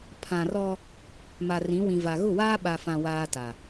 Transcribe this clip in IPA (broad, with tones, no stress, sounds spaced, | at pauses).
pʰ ã˨ r ɔ˦ | m a˨ r ĩ˨˦ w ĩ˨ v a˨ ɣ ʊ˦˨ w aː˦ ɓ a˨ f ã˨ w aː˦ t a˨